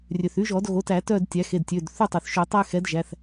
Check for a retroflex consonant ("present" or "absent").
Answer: absent